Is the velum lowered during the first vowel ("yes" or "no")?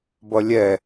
no